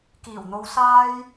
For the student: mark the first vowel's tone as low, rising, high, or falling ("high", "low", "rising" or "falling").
low